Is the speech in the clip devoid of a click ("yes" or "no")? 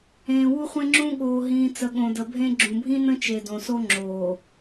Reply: no